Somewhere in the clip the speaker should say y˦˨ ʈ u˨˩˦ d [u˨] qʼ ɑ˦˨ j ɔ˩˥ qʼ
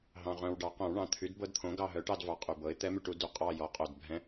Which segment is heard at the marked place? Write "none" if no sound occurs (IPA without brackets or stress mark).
u˨